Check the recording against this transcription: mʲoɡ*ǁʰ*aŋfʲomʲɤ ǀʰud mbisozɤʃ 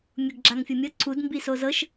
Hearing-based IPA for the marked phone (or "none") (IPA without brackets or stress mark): ɡ͡ǁ